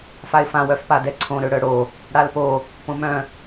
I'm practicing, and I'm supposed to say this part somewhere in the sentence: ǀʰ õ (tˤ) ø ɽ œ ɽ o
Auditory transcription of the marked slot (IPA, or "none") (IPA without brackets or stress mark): ɾ